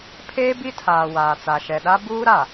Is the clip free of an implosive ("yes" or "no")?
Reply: no